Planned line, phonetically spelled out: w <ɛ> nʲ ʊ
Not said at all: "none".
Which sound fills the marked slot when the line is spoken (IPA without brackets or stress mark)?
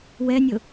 ɛ